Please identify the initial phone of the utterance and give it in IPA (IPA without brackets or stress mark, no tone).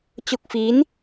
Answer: t͡ɕ